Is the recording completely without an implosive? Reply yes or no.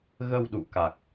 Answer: no